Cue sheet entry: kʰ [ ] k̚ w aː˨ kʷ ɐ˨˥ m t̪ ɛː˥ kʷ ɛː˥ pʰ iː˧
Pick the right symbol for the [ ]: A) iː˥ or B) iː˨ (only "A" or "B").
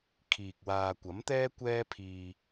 B